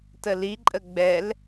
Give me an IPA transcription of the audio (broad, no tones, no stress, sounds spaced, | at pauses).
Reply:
t ə l i ǃʼ ə ɡ͡b ɛ l